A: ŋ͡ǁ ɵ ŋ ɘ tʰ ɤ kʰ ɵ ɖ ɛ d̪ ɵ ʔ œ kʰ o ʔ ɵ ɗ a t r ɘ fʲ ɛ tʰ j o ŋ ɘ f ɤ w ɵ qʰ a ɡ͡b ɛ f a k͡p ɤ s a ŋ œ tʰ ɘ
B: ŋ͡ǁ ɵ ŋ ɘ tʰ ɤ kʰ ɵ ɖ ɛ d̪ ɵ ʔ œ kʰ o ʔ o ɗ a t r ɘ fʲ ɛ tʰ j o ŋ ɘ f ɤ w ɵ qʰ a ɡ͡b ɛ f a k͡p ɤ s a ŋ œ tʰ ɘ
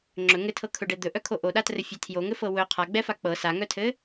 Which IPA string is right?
B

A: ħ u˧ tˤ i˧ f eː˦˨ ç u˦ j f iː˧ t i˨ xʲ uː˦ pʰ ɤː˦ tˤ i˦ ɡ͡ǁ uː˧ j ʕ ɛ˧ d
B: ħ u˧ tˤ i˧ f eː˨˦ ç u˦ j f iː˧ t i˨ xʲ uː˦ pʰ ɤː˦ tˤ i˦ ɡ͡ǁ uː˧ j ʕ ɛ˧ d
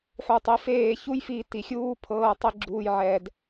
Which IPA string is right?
A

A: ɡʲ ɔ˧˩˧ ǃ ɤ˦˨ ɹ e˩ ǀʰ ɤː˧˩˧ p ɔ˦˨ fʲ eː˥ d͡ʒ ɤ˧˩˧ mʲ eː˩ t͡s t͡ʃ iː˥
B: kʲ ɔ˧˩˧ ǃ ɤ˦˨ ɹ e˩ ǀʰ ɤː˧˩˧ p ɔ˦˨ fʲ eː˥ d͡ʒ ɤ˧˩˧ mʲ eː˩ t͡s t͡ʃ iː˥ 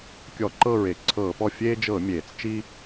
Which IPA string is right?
B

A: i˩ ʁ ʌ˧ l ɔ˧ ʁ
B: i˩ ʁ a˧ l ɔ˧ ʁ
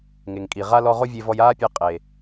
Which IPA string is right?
B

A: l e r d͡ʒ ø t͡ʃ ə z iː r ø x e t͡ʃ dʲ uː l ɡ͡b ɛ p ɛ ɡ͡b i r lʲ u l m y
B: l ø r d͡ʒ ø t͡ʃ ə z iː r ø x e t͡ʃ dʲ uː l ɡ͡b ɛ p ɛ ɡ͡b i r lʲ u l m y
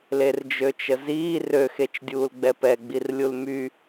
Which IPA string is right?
A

